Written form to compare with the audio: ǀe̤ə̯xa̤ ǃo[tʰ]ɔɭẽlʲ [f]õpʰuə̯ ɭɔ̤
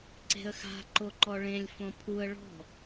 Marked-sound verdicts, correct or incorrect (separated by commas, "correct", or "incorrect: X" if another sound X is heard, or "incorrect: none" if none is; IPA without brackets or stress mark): incorrect: ǃ, correct